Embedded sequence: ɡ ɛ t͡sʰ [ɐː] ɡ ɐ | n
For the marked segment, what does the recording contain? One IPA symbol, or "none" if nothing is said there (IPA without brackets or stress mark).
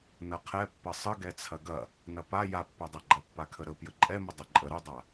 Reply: ɐ